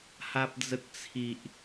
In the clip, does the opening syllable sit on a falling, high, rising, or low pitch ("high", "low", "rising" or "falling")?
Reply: high